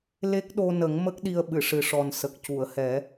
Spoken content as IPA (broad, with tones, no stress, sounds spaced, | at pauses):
l e˦˥ k̚ ɗ o˧ n ə˨˩˦ ŋ m ə˦˥ k̚ ɗ i˧ ə̯ ɓ ɨ˨˩˨ ʂ ɨ˨˩ ʂ ɔ˨˩ n s ə˨˩ k̚ c u˨˩˨ ə̯ h ɛ˨˩˦